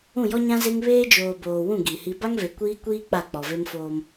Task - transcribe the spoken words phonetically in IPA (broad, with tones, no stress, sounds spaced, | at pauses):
ũ˦˨ j ɔ˦ ɲ ã˦ z e˦ ŋ β eː˦ d͡ʒ oː˨ b oː˨ w ũ˦˨ ɡ i˨ h i˦ b a˦ ŋ v e˨ kʷ iː˦ kʷ iː˦ k͡p a˦˨ k͡p ɔ˨ v e˦ m f oː˦ m